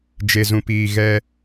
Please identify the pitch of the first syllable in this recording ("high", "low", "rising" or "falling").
low